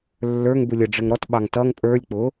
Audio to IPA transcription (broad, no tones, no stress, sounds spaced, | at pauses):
lː ə˞ ŋ b u lʲ ə ɖ͡ʐ ə ŋ ɾ ɔ t ɓ ɑ ŋ t ʌ ŋ pʼ ə˞ lʲ k͡p ʊ